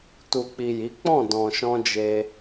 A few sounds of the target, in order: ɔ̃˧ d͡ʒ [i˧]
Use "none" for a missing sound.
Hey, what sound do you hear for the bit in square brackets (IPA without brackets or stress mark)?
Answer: e˧